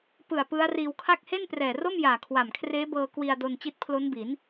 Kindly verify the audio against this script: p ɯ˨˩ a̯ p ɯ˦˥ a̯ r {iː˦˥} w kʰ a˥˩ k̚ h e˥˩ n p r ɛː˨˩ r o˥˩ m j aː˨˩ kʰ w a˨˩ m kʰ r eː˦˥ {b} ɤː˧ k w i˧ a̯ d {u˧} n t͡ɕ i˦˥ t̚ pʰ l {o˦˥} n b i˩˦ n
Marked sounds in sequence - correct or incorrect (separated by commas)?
incorrect, correct, incorrect, correct